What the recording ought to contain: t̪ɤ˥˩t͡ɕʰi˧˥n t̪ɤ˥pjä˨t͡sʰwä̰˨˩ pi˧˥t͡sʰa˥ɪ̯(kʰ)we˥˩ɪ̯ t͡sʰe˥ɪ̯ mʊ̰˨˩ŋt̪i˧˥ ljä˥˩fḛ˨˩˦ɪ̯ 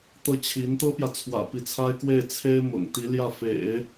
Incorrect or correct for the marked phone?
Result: incorrect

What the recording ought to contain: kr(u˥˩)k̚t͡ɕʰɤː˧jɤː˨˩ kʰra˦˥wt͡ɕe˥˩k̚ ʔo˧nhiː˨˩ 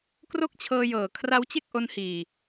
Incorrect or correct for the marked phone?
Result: incorrect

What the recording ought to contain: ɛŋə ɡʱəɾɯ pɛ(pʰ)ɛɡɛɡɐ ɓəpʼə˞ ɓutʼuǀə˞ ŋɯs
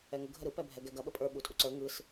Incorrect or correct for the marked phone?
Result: incorrect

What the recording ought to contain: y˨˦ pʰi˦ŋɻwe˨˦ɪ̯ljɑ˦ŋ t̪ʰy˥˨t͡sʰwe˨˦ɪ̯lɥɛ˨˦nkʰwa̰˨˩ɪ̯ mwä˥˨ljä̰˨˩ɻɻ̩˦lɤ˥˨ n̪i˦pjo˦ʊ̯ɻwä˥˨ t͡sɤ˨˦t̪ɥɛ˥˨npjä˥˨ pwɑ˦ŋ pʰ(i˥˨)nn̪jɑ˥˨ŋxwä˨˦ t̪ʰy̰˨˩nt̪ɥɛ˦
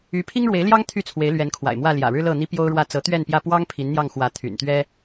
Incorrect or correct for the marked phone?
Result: incorrect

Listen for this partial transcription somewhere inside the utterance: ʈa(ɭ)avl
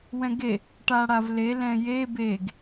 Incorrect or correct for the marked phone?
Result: incorrect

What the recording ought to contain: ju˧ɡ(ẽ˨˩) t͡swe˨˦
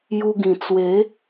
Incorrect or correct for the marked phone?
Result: incorrect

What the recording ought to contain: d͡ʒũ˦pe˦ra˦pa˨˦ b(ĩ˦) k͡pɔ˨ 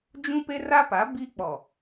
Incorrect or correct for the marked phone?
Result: incorrect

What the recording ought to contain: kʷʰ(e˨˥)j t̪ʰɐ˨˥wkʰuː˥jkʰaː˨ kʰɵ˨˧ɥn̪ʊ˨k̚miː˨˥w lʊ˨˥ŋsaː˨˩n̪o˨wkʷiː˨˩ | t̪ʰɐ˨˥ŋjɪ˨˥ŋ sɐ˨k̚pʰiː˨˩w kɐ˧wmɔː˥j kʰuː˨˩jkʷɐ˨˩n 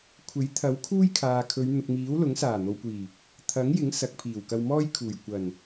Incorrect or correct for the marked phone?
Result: correct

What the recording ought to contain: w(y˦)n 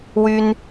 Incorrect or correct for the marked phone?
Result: correct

